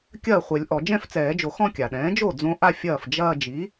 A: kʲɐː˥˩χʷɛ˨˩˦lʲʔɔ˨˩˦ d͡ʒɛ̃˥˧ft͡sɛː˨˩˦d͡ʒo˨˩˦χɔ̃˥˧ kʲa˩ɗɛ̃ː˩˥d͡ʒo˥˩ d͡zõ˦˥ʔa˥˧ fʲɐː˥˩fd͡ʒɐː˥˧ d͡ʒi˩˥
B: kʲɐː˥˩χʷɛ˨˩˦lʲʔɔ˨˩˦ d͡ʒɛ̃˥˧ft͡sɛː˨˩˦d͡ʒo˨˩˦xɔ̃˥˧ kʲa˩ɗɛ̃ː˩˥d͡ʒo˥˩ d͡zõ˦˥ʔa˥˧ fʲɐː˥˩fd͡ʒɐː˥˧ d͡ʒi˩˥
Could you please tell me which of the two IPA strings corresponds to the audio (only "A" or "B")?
B